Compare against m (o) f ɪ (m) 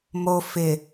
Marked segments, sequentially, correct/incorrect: correct, incorrect

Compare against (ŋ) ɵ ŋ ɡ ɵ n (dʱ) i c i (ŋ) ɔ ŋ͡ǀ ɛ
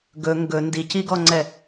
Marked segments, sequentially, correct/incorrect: incorrect, incorrect, incorrect

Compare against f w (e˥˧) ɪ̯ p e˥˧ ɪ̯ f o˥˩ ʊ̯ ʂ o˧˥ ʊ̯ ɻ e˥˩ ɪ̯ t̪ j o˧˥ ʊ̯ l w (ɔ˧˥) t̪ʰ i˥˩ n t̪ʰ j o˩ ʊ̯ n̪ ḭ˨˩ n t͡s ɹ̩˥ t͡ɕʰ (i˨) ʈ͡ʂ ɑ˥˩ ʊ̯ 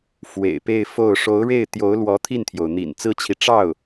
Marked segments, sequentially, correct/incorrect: incorrect, correct, correct

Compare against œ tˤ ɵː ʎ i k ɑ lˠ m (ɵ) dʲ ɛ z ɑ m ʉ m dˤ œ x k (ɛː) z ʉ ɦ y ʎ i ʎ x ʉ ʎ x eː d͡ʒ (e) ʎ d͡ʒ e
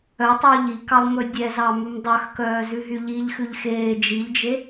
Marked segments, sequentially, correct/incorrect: correct, incorrect, incorrect

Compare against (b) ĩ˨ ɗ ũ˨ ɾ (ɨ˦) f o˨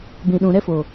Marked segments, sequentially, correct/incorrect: correct, incorrect

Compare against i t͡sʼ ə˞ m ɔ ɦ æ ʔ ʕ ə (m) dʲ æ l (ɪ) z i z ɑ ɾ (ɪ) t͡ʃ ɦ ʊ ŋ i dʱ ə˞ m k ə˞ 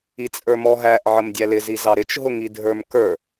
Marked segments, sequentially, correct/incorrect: correct, correct, correct

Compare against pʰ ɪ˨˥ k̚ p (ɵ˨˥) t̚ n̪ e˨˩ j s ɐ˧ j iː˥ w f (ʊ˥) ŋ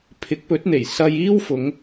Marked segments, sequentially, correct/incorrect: correct, incorrect

